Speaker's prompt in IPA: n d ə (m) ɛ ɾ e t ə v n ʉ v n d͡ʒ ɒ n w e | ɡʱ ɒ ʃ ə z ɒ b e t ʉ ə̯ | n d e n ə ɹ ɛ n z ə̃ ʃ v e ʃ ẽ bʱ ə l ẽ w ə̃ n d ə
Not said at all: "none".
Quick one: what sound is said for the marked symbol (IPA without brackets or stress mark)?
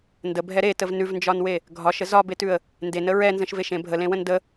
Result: bʱ